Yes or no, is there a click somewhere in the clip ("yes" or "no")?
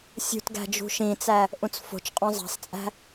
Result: no